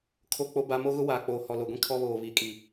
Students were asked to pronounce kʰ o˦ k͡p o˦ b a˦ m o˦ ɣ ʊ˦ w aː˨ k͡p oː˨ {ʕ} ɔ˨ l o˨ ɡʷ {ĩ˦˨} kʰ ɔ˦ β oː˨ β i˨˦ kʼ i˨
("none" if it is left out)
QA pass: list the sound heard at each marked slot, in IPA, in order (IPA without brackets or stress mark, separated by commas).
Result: h, ĩ˦